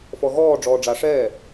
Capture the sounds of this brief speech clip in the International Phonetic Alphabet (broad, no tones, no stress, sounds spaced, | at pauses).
f ɔ ɣ ɔː ɖ͡ʐ ɔː ɖ͡ʐ a ʂ ɛː